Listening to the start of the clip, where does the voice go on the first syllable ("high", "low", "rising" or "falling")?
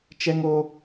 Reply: high